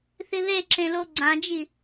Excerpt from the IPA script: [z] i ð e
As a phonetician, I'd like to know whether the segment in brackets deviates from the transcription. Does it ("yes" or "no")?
yes